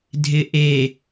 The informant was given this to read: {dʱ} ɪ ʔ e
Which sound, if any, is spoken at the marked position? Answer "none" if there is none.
dʱ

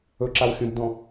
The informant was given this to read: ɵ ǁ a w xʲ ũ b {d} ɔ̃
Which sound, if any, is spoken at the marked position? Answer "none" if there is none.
d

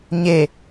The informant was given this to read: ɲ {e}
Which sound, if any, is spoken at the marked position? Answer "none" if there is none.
e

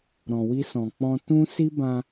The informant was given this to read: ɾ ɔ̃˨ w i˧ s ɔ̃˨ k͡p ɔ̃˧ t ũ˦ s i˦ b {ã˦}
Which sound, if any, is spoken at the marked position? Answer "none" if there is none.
ã˧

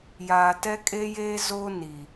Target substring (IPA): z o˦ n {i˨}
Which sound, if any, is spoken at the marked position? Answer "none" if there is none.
i˨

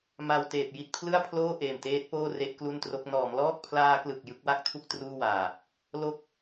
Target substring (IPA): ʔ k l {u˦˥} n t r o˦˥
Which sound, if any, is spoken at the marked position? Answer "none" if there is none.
u˥˩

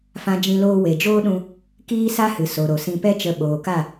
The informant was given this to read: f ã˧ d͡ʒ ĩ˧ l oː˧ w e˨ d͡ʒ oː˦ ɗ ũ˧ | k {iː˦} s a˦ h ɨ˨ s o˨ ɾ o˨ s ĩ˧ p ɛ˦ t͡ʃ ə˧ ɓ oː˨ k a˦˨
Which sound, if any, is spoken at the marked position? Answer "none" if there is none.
iː˦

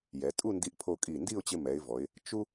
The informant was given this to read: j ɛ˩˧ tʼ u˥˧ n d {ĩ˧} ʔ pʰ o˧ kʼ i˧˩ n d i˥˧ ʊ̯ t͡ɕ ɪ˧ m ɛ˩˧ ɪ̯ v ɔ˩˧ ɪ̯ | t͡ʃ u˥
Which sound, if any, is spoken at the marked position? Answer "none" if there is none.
i˧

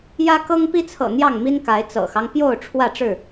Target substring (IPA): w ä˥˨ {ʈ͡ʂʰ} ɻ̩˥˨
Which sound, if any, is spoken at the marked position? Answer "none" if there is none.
ʈ͡ʂ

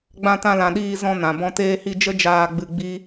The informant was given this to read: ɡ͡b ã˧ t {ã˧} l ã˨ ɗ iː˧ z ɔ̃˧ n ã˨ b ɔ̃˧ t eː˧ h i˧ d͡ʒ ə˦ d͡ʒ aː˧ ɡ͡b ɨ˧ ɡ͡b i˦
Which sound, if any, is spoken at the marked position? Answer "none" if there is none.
ã˧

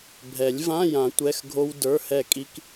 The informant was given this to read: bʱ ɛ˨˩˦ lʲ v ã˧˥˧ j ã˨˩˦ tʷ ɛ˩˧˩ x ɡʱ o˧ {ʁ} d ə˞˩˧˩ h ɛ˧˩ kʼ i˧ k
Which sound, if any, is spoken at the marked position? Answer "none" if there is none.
w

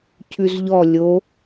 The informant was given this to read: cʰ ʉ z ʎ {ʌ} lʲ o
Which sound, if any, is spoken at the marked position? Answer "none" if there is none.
ɔ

